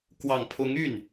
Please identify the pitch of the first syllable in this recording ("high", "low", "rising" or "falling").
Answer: low